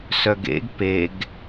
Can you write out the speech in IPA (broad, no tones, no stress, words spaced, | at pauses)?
sœɡḛɡ peɡ